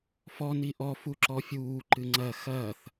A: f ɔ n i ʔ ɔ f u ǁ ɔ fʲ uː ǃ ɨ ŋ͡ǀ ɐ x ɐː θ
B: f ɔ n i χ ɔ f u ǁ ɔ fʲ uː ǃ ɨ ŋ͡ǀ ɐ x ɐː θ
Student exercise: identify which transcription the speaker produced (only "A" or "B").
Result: A